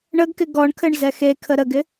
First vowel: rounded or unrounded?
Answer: unrounded